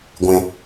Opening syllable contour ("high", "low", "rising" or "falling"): low